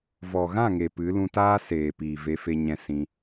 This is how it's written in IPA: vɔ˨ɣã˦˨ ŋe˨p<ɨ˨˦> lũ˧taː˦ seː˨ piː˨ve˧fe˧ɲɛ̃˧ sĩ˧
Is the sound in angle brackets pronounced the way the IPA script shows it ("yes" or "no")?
yes